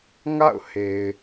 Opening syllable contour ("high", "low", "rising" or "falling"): falling